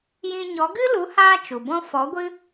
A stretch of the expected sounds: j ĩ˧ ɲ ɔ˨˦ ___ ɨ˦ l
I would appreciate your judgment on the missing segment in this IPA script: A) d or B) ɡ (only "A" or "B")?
B